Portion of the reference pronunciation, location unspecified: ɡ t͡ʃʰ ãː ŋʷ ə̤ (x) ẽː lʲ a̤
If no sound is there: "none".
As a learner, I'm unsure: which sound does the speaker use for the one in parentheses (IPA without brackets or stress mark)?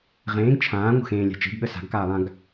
x